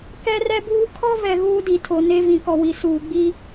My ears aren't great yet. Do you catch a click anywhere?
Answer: no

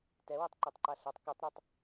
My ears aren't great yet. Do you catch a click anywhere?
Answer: yes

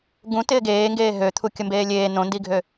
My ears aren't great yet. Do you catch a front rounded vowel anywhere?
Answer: yes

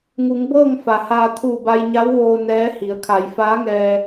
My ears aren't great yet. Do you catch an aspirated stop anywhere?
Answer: yes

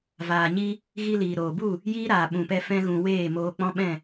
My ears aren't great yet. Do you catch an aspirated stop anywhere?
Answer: no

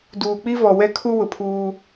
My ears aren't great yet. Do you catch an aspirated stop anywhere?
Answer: yes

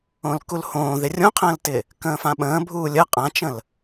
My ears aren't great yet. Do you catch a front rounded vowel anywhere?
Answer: no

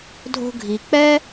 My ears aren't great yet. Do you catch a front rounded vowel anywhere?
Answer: no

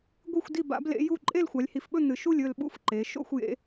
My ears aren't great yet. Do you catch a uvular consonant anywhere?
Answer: no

